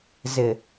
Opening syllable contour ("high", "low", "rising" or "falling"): low